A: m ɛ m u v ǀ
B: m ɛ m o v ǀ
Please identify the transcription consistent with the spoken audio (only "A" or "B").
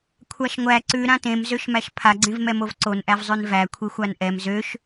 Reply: B